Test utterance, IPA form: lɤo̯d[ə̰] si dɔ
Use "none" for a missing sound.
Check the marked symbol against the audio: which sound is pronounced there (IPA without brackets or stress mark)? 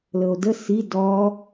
ə